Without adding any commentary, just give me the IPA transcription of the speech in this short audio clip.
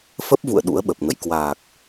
f ə˦˥ p̚ v ṵ˧˨ ə̯ ɗ ṵ˧˥ ə̯ ɓ ə˨˩ p̚ ŋ ə̰˧˨ j k w aː˨˩ k̚

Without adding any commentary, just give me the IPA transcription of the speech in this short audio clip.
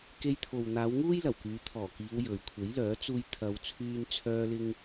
k e˧ j t̪ʰ o˨ w n̪ aː˨˧ w ŋ uː˥ j l ɐ˨˩ w k yː˨˧ t̪ʰ ɔː˨˩ k iː˨˧ w j ɵ˨ ɥ kʷʰ e˨˥ j l œː˨˥ t͡s uː˧ j t̪ʰ ɐ˨˧ w t͡sʰ yː˧ n t͡sʰ œː˧ l ɪ˧ ŋ

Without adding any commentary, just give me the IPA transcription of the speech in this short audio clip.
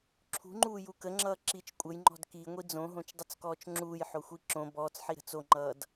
ǁʰ ṳ ŋ͡ǃ uː j u k ə ŋ͡ǁ ʌː ǁ i t͡ʃ kʷʼ ə j ŋ͡ǃ ɔ̤ d k i ŋʷ i d͡z õ ɦ õ t͡ʃ dˤ ə t͡s k ɔː t͡ʃ ŋ͡ǁ uː j ħ o xʷ i ǁ õ b ɔː t͡s ħ i ɾ ə̤ t͡s o ŋ͡ǃ ʌː d

